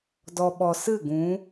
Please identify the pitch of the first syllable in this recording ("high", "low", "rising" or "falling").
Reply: low